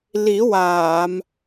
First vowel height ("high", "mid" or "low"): high